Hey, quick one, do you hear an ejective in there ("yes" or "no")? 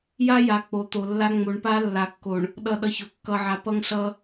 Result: no